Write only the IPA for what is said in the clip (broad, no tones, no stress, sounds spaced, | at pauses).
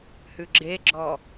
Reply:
h ʉ ɡ͡ǁ e ɡ͡ǁ ɔ